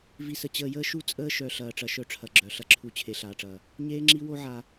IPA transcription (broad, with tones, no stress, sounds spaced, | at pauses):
v i˨ s ə˨ t͡ɕ əː˨ j əː˦ ʃ u˦ t͡sʼ əː˦ ʃ œ˨ ɬ ɐː˨ ʈ͡ʂ ɐ˨ ʃ œ˦ ʈ͡ʂʰ ɐ˨ ɡ͡ǁ œ˨ ɬ ɐ˦ ǁʰ u˦ t͡ɕʰ e˨ ɬ aː˨ ʈ͡ʂ ɐː˨ | ɲ eː˦ ŋ͡ǁ i˦ w o˦ ʕ a˨